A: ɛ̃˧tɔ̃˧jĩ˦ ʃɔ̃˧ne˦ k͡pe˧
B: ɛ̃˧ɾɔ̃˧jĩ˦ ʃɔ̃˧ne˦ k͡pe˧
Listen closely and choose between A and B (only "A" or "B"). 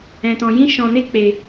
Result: A